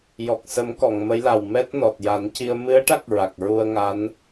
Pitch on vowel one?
low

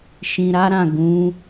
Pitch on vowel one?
low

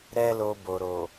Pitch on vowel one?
high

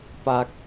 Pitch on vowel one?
low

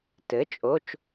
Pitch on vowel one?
rising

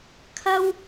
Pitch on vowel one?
high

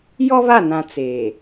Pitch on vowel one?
high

